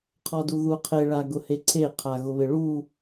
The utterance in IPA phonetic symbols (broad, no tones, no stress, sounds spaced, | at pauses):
qʰ ɔ d u ð u qʰ e ɭ a ɡ ʊ h e ǀʰ e qʰ a ɣ ʊ β ɪ ɭ u